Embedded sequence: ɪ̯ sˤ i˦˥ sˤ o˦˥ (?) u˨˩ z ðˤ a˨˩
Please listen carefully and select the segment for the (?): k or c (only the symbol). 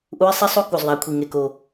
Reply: k